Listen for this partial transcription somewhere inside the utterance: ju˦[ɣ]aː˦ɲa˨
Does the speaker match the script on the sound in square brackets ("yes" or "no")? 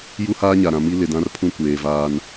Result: no